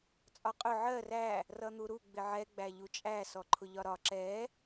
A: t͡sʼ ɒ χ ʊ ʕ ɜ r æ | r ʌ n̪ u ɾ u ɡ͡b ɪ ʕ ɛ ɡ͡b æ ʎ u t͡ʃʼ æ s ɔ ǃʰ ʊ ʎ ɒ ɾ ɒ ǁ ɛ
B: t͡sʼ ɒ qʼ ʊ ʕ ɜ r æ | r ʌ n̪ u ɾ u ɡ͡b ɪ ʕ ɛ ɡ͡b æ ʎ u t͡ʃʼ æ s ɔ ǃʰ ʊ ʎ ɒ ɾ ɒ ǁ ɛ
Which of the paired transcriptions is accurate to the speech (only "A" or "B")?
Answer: B